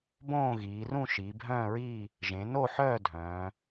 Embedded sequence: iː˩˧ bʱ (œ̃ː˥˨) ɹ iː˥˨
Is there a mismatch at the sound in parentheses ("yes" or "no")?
no